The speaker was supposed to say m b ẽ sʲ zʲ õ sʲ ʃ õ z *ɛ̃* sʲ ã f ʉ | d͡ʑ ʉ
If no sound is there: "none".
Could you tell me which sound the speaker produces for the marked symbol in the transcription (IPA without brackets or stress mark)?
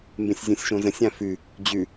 ə̃